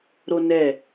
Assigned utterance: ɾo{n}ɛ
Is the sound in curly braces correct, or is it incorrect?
correct